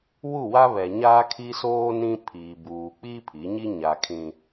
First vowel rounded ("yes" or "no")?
yes